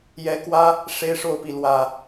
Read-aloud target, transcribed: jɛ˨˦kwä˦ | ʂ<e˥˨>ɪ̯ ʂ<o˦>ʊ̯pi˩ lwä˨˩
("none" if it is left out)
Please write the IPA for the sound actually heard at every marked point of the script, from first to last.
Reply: e˦, o˥˨

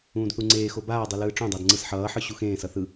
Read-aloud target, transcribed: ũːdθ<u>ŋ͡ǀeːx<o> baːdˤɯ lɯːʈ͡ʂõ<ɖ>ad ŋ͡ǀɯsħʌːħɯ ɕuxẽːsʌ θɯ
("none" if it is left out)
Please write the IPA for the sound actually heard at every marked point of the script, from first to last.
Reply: u, o, dˤ

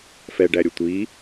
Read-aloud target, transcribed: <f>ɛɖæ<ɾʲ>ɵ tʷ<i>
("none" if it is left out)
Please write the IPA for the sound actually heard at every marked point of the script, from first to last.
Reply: f, ɾʲ, i

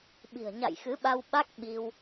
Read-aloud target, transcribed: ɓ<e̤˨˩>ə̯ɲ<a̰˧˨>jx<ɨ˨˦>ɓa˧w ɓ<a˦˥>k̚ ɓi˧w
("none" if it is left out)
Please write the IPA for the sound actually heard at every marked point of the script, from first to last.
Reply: i̤˨˩, a̰˧˨, ɨ˨˦, a˦˥

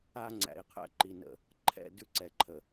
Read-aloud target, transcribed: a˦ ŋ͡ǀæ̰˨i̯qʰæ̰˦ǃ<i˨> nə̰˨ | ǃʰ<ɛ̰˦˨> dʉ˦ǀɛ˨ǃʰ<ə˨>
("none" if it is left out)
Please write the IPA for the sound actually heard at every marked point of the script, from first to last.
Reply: i˨, ɛ̰˦˨, ə˨

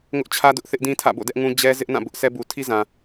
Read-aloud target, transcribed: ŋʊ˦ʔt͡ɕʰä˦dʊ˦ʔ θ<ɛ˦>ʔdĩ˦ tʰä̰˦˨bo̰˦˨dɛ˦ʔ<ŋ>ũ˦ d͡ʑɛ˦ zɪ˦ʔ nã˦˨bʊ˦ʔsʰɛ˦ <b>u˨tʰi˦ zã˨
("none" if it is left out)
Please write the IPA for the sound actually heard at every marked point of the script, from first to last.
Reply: ɪ˦, ŋ, b

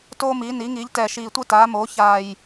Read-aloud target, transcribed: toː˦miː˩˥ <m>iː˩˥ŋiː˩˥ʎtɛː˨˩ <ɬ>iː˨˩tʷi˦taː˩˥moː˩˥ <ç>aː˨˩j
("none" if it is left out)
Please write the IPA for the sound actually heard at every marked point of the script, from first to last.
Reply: n, ʃ, ç

